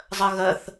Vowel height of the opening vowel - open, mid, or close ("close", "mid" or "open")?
mid